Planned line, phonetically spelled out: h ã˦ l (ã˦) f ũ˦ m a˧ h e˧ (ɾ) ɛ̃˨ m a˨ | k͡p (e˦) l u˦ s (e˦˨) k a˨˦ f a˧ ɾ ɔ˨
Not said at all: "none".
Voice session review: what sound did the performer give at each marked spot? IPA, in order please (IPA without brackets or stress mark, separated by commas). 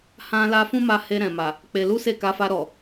a˦, ɾ, e˧, e˦˨